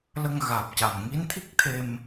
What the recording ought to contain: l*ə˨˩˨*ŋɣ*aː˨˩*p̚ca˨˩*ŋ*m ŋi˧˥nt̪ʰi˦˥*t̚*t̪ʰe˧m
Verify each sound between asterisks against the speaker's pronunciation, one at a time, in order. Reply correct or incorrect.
incorrect, correct, incorrect, incorrect

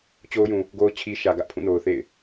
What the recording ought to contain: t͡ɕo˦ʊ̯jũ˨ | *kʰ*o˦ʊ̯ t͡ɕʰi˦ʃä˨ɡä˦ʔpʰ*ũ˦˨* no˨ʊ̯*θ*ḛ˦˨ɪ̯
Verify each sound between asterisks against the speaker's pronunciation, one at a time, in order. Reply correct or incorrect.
incorrect, correct, correct

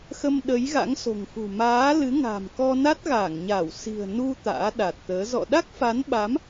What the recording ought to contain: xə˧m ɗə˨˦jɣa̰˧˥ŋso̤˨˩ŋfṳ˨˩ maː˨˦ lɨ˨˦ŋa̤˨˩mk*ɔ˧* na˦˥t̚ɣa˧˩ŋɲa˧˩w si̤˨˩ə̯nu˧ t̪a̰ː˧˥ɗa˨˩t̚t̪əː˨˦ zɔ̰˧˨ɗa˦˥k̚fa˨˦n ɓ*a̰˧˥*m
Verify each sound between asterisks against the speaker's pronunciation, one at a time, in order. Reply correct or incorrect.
correct, incorrect

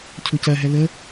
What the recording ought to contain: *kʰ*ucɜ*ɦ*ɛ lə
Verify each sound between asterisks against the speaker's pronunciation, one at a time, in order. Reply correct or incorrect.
incorrect, correct

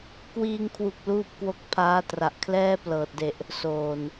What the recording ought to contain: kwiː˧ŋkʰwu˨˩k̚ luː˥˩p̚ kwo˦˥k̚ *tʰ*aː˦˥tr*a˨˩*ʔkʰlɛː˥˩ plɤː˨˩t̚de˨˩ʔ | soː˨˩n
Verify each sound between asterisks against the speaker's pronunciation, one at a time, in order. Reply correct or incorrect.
incorrect, correct

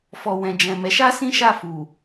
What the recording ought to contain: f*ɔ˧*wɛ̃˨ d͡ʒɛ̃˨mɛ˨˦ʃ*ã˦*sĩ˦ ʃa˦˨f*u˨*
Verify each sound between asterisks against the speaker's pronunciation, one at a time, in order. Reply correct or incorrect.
incorrect, incorrect, correct

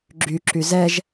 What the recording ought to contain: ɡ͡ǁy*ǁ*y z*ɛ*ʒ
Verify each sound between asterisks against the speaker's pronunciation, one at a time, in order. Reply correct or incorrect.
correct, correct

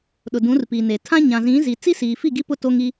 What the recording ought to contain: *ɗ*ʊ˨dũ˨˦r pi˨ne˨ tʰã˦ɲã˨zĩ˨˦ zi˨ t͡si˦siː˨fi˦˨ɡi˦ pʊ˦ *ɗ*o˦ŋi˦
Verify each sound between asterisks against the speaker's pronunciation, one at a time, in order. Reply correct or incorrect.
correct, incorrect

